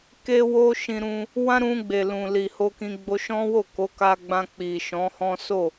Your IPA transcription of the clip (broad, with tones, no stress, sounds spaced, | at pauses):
k e˦ w o˦ ʃ ĩ˧ ɾ ũ˧ | w ã˦ ɾ ũ˧ ɡ͡b e˨ l ũ˨ l i˨ h o˧ k ĩ˧ ɡ͡b o˧ ʃ ɔ̃˦ w o˦˨ k o˨˦ k a˧ ɡ͡b ã˧ k͡p i˨ ʃ ɔ̃˨˦ h ɔ̃˦ s o˦˨